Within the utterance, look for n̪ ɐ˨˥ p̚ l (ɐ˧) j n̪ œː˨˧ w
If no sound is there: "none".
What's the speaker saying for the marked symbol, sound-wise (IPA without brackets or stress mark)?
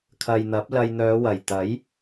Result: ɐ˧